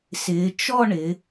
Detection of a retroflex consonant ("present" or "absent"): present